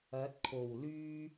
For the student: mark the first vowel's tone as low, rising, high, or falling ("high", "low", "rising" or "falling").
rising